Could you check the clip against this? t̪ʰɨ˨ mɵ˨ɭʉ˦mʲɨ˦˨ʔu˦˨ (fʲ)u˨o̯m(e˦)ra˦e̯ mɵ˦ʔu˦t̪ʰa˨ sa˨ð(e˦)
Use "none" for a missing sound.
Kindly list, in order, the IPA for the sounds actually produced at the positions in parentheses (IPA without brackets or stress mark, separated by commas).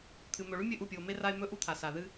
pʲ, e˦, ɨ˦